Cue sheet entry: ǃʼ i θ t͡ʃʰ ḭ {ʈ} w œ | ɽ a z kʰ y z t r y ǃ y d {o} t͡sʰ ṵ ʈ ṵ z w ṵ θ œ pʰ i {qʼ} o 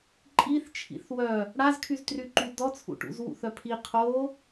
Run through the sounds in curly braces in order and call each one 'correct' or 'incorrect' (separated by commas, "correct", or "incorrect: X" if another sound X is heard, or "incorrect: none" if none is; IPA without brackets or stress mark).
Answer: incorrect: θ, incorrect: ɔ, incorrect: qʰ